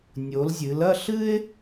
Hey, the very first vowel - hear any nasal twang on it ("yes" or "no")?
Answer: no